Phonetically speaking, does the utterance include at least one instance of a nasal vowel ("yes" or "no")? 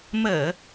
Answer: no